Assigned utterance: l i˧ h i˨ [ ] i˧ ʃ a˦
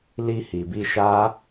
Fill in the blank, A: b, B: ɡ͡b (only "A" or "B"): A